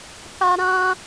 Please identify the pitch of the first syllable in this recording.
high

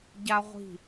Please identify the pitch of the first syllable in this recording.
high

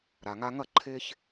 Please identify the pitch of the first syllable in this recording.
low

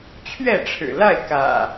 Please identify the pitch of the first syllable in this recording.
falling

